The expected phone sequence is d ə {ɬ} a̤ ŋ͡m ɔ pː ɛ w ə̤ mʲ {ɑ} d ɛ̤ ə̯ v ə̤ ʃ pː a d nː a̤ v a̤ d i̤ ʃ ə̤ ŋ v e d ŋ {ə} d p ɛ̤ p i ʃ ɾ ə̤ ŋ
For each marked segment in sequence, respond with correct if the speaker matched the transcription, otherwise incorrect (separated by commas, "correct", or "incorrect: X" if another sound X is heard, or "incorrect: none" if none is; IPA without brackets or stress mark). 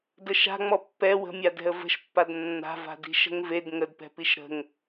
incorrect: ʃ, incorrect: a, correct